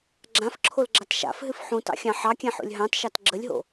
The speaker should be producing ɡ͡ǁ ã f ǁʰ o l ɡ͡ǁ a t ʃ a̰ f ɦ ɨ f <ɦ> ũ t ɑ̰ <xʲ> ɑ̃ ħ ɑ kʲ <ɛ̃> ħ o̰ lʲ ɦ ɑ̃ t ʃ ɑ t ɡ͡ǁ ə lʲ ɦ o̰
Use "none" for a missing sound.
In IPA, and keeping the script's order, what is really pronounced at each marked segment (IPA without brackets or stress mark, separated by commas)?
ħ, xʲ, ɛ̃